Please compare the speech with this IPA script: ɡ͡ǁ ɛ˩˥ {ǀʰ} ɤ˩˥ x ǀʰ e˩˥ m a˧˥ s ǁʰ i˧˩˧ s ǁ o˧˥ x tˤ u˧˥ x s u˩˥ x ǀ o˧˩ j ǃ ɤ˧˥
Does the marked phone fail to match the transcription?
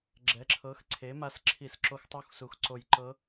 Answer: yes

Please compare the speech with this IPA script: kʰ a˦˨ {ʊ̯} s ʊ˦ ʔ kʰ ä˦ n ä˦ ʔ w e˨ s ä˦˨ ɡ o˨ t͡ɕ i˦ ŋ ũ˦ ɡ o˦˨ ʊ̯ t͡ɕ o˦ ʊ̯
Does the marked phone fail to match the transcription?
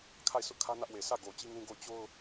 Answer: yes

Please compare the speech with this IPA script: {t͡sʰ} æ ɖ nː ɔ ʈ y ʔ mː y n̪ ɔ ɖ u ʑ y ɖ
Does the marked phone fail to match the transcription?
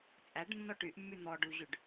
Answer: yes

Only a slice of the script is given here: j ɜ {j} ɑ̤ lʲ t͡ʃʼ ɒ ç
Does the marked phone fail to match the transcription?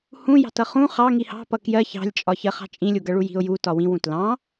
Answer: yes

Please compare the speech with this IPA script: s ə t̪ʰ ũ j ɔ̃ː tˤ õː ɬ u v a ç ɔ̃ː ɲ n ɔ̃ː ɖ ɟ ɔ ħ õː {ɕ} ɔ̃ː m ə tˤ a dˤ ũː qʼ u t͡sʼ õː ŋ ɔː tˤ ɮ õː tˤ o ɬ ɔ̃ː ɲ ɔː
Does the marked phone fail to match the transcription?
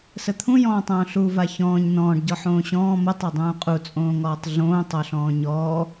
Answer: no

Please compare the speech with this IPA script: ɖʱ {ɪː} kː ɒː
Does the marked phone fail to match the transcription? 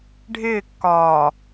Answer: no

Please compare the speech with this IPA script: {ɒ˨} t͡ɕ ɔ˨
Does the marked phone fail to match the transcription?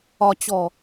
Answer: no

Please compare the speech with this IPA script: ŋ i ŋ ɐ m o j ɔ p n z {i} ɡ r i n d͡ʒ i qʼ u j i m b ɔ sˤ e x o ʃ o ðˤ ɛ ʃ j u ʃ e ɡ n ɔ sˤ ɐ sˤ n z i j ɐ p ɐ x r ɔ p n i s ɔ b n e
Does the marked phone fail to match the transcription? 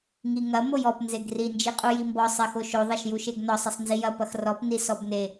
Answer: yes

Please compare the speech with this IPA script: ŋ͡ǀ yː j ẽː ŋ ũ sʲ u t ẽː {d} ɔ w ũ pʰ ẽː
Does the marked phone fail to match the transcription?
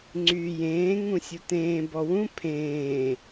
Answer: yes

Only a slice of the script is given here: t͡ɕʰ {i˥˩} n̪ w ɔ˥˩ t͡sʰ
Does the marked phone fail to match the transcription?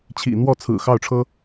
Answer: yes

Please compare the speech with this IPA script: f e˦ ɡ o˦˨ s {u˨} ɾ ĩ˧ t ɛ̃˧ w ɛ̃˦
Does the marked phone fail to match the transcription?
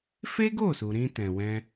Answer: no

